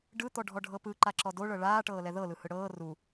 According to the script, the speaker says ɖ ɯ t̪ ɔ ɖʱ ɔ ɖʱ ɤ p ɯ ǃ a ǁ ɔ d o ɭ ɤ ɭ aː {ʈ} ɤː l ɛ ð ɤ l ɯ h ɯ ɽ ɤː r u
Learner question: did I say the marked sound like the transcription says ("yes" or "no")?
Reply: yes